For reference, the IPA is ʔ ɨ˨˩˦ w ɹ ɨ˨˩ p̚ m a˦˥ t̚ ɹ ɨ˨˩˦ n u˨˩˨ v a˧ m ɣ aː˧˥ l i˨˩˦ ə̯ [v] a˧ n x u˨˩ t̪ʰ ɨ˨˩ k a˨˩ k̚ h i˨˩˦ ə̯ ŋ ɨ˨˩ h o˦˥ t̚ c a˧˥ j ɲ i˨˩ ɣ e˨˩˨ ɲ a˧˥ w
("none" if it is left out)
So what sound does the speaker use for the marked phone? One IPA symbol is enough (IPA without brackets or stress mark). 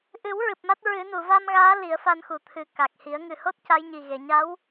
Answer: f